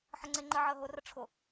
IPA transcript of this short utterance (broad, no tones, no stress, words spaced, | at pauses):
ħəŋ͡ǀeŋ͡ǃə ʕəːɦʊrə ʈ͡ʂʰʊ